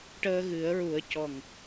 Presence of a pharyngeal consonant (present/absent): absent